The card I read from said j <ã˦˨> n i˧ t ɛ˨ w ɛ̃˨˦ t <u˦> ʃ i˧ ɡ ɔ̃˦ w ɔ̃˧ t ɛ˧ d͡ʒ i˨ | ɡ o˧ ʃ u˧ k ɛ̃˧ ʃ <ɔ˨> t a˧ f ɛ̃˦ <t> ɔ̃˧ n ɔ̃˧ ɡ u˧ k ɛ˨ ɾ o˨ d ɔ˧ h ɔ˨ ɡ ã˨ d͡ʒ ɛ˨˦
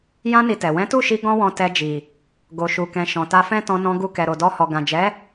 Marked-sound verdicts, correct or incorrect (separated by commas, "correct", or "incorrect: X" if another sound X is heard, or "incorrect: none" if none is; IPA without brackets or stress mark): incorrect: ã˦, incorrect: u˦˨, incorrect: ɔ̃˨, correct